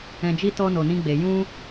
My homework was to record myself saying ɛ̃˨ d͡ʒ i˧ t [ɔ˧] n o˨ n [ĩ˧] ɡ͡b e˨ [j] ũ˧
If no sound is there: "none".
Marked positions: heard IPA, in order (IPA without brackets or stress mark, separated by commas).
ɔ˧, ĩ˧, j